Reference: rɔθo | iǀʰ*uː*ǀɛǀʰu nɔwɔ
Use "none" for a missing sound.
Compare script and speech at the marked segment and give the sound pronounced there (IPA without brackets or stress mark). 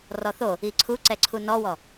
u